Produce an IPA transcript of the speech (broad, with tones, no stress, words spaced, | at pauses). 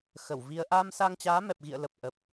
xə˧˩wvi˧ə̯ ʔaː˧msa˧ŋt͡ɕaː˨˦ mɛ˨˩p̚ɣḭ˧˨ə̯lə˨˩p̚ ʔə˨˩p̚